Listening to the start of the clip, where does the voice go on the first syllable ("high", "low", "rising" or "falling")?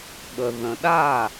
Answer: low